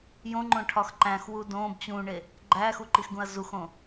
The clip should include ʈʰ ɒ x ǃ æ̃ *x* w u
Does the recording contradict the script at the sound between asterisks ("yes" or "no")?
no